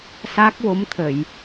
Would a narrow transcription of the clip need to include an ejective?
no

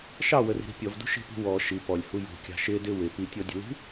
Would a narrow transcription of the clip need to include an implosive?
no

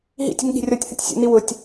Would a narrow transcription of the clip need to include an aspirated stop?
no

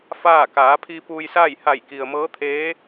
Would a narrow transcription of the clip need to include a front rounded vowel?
no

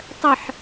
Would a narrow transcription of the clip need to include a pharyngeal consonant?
yes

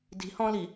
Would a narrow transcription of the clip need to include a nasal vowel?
yes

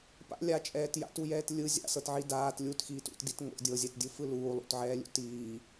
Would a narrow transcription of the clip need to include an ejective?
yes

